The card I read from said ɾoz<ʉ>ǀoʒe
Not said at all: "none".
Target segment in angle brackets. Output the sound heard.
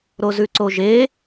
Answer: ʉ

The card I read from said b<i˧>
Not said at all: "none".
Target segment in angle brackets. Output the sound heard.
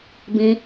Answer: ĩ˧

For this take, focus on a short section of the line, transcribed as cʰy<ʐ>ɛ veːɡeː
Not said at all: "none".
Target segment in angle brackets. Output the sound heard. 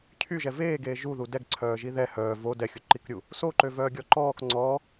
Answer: ʒ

